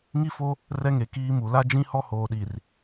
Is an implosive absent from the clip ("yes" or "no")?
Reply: no